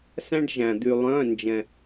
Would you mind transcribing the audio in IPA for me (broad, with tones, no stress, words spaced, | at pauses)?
sæ̃˧ɖʒæ̃˩ d̪y˩lˠœ̃˩˧˩nd͡ʒɛ̃˩